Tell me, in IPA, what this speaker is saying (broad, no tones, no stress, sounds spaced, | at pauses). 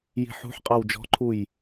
j i̤ ħ ṳ ħ qʼ ɑ w d͡ʒ ɔ̤ ǃʰ u j